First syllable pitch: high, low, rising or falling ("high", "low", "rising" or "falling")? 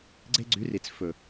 high